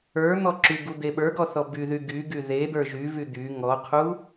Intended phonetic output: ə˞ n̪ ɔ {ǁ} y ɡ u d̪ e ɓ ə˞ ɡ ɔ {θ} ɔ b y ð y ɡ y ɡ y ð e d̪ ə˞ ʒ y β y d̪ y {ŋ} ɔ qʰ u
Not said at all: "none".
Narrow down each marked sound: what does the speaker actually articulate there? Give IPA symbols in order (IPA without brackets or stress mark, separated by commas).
ǁ, θ, ŋ